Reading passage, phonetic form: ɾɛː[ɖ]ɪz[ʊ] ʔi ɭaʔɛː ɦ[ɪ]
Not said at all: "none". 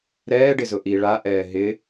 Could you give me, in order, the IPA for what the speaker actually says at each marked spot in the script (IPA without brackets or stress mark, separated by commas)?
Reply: ɖ, ʊ, ɪ